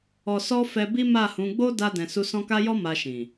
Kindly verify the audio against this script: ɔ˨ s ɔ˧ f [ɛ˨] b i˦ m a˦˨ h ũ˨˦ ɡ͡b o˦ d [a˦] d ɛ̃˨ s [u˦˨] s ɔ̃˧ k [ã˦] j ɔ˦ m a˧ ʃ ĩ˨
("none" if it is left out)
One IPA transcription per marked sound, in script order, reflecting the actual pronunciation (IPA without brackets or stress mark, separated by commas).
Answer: ɛ˧, a˧, u˧, a˦